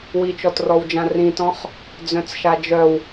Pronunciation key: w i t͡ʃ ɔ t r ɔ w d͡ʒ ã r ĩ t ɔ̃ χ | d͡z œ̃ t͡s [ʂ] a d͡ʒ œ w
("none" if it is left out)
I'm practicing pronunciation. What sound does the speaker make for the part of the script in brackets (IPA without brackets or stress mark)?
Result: ʃ